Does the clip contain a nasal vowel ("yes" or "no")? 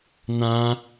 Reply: yes